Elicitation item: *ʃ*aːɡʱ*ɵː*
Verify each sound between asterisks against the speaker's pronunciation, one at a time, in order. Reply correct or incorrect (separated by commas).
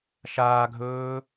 correct, correct